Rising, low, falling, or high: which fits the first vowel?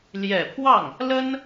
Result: low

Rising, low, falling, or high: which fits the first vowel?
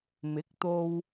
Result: rising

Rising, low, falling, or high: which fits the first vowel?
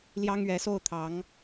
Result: high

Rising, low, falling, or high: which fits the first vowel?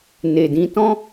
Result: low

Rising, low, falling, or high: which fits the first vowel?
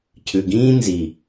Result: low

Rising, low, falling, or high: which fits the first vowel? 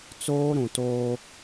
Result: high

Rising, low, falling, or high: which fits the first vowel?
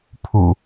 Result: low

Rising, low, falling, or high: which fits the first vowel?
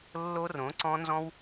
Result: high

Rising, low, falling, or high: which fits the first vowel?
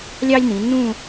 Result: high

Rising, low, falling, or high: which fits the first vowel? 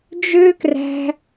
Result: high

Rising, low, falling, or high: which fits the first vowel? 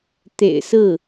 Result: low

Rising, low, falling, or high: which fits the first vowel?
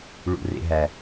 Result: low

